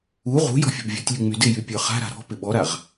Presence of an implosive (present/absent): present